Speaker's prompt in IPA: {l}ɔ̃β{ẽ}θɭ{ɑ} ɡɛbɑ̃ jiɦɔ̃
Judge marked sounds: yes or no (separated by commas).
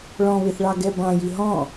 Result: no, no, yes